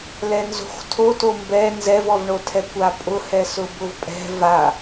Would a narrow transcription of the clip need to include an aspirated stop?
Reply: yes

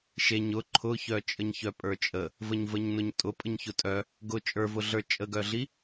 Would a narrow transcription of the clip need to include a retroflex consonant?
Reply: no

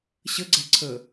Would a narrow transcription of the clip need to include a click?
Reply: yes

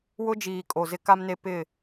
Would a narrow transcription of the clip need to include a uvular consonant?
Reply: no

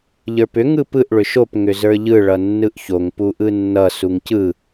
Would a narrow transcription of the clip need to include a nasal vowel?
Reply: no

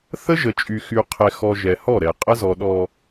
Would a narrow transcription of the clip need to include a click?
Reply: no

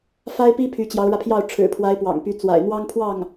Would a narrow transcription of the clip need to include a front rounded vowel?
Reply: yes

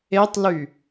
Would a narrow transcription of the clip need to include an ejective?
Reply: no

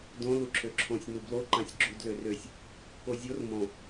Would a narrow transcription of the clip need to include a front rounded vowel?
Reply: yes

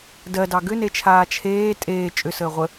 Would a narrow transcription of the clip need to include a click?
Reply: no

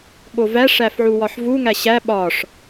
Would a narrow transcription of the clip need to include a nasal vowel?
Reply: no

